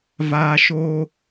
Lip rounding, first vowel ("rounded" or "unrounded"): unrounded